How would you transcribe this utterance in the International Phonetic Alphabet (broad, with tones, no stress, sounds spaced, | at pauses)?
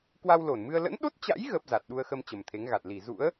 k w a˧ w l o˧˩ n m ɨ˧ ə̯ l ə̰˧˥ n ɗ o˦˥ t̚ t͡ɕ a̰˧˥ j ɣ əː˦˥ p̚ z a˨˩ t̚ ɗ u˧ ə̯ x ə˧ m t͡ɕ ə˨˩ m t̪ʰ e˨˦ ŋ ɣ a˨˩ t̚ l i˧˩ z ṵ˧˥ ə̯